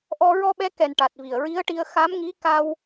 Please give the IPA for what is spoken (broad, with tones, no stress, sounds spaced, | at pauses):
ʔ ɔ˧ ɹ ɔ˧ ɓ ɛ˧˥ k ɛ˨˩ n ʈ a˨˩ t̚ v i˨˩ ə̯ ɹ i˧˥ ə̯ ʈ i˧ ə̯ x a˧˥ m ŋ i˧˥ k a˧ w